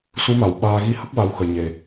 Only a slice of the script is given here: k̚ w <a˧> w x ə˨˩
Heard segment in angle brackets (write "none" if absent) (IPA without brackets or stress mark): a˧